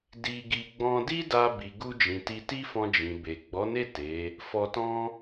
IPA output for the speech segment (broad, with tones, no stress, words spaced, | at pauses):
di˧ɡi˧ ɡ͡bɔ̃˧di˦da˧ bi˨ɡu˧d͡ʒĩ˨ ti˧ti˦fɔ̃˧ d͡ʒĩ˨ be˨ ɡ͡bɔ˨˦ne˦˨ te˨˦ | fɔ˧tɔ̃˦